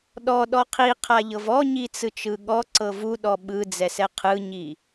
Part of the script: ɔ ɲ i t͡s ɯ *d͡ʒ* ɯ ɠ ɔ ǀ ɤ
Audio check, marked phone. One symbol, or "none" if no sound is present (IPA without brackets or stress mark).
t͡ʃ